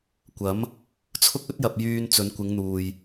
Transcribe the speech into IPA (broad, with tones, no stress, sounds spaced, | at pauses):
kʷ ɐ˨˥ m | t͡sʰ ʊ˥ k̚ ɵ˥ t̚ j ɐ˨ p̚ j yː˧ n t͡s ɵ˨˧ n kʷ ɪ˨˧ ŋ n̪ uː˨ j